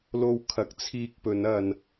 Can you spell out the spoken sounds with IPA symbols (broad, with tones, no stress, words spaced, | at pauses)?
lo˧wkʰɐ˨˥k̚t͡sʰiː˧k̚pɵ˨˧n ɐ˧n